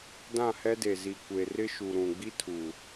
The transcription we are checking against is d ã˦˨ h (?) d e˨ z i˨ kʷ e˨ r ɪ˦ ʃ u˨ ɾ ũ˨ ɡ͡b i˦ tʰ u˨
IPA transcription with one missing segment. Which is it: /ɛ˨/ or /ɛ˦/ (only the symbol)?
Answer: ɛ˦